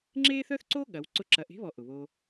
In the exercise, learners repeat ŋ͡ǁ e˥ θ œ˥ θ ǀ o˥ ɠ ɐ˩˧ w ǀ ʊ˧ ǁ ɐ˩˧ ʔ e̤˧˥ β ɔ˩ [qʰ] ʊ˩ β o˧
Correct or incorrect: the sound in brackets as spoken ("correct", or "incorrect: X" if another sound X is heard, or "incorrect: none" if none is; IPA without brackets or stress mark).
incorrect: ʔ